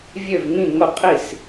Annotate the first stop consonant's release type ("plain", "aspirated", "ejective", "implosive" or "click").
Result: ejective